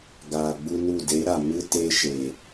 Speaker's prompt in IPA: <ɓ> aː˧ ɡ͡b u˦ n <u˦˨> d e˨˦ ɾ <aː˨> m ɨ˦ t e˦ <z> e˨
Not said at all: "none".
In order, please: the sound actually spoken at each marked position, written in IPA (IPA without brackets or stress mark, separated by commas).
ɡ, u˦˨, a˨, ʃ